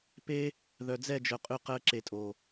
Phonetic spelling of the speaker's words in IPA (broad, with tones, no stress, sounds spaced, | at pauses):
p e˦ | ð œ˨ d͡z ɛ˦˨ d͡ʒ œ˨ qʼ ʉ˧ q ɜ˧ ǁ e˨ tʼ o˨